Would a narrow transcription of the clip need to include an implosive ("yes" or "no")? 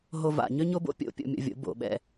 yes